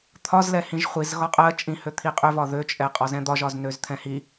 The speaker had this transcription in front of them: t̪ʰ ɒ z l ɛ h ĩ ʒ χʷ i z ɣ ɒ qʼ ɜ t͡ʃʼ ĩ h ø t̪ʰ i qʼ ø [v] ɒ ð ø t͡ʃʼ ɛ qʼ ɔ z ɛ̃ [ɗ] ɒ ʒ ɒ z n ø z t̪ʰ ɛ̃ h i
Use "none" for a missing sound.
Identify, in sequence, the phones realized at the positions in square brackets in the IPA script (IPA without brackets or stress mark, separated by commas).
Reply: v, d̪